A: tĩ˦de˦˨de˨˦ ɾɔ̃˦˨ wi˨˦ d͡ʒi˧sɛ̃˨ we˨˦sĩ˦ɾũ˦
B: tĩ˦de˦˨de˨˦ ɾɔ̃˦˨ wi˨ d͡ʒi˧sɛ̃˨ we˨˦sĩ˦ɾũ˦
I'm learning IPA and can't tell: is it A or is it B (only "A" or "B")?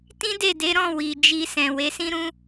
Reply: B